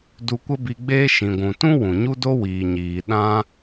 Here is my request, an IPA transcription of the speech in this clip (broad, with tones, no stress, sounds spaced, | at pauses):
d u˧ kʷ ə˦ b i˧ ɡ͡b eː˦ ʃ ĩ˨ ɡʷ ũ˨ t ũ˦ w ũ˨ ɲ u˦ d o˦ w iː˨ ɲ iː˨ ɗ ã˦